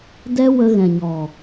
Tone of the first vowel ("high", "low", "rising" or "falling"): high